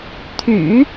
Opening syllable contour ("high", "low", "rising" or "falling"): low